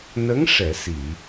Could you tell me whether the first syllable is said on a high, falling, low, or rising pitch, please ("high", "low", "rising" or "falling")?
rising